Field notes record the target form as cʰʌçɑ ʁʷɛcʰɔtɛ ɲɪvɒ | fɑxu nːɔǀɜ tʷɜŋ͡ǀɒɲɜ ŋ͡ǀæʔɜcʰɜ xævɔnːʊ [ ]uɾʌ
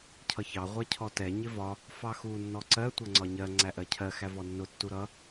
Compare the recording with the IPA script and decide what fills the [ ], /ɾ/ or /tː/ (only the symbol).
tː